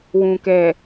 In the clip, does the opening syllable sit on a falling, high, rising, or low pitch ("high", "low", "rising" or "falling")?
low